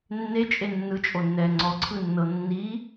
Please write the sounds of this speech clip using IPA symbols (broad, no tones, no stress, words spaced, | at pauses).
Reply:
nːet͡ʃʼe nːɯt͡ʃʼonːɛː ŋ͡ǀɔǀʰɯnːɤ nːi